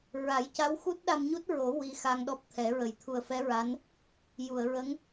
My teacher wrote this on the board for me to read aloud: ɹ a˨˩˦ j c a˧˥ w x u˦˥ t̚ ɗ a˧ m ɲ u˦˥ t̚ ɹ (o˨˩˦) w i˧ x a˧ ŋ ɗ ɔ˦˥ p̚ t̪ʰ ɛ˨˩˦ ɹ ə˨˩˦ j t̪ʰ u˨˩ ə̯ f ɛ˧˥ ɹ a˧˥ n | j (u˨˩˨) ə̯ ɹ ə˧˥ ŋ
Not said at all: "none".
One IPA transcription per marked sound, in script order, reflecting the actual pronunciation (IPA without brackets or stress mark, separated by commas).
o˨˩˦, u˨˩˨